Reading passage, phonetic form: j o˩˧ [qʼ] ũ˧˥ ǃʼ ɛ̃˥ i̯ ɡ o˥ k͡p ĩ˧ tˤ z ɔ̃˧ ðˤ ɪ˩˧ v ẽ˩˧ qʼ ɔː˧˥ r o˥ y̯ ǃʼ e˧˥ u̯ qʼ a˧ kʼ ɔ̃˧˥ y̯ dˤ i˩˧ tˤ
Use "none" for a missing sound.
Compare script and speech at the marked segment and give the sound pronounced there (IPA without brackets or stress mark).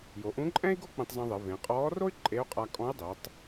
ʔ